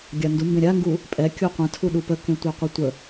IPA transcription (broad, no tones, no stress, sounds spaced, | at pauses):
ɡʲ a n d u m b ẽ ɾʲ a ŋ ɡ u | pʼ ɛ kʲ u qʷ ə̃ tʰ u ɗ u p ə k ẽ tʷ ɛ qʷ ə tʷ ə